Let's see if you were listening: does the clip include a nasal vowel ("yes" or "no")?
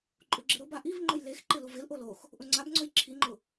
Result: no